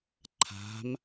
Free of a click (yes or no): no